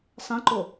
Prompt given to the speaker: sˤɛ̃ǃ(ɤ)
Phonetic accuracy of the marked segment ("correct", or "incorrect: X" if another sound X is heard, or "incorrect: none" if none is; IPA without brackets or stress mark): incorrect: o